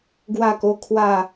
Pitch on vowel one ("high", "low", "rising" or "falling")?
falling